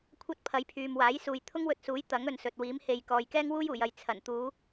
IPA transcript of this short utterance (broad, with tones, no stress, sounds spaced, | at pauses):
kʷʰ ɐ˥ t̚ pʰ ɐ˨˥ j pʰ yː˨ m w aː˨˥ j s uː˨ j t̪ʰ ʊ˥ ŋ w ɵ˧ t̚ s uː˨˥ j t̪ ɐ˨˥ ŋ ɵ˨ n s ɵ˨ t̚ w iː˨˥ m h e˨ j k ɔː˨ j k ɛː˥ ŋ w uː˥ j uː˨˩ j ɐ˨ j t͡sʰ ɐ˨˩ n t̪ uː˨˧